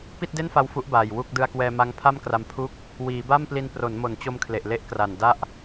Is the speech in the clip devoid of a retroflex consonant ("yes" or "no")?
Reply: yes